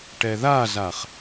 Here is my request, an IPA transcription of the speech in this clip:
ʈ ɛ ð a z a χ

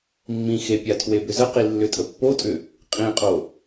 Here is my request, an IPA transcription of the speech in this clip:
mː ĩ x e pʲ a tʰ w e b ʏ z ə q i lː ʏ tʼ ə pː o tʼ ʏ | qʼ ĩ qʼ o

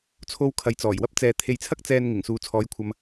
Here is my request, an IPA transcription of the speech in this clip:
t͡sʰ o˧ w kʰ ɐ˨ j t͡s ɔː˨˩ j w ɐ˥ p̚ t͡s ɛː˨ t̪ʰ e˨ j t͡sʰ ɐ˥ k̚ t͡s ɛː˧ n ŋ ɪ˨˩ ŋ s uː˨ t͡sʰ ɔː˨˧ j kʷʰ ɐ˨ m

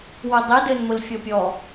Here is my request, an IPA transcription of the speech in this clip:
w ʊ dˤ i d ɘ n m ʊ l fʲ ɔ pʲ ɔ

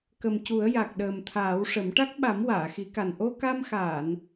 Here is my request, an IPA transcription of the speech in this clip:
k ə˨˩ m c u˨˩˦ ə̯ j a˨˩ k̚ ɗ əː˨˩ m t̪ʰ aː˨˩˦ w ʂ ə˨˩˦ m ʈ a˦˥ k̚ ɓ a˨˩˦ m w aː˨˩˨ x i˨˩˦ k a˨˩ n ʔ o˧ k a˧ m x aː˨˩˨ n

